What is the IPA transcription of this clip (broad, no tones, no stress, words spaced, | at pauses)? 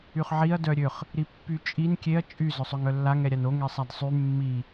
yχʕiɐ̯ dœɾʲøχ | ɾipːyt͡ʃʼin kʲeɐ̯ t͡ʃʼy zœsˤøŋœlːa ŋɛɾʲano ŋɛsˤadsˤy mːi